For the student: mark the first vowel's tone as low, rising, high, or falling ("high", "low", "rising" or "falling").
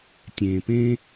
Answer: low